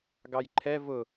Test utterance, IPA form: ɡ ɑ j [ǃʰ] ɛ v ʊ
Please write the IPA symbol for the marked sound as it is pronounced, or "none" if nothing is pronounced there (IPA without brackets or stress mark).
ǃʰ